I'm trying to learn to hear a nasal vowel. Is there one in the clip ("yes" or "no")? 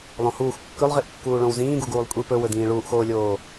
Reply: yes